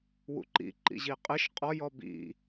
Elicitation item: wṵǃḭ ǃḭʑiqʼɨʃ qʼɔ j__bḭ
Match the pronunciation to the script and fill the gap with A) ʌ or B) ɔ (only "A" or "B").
B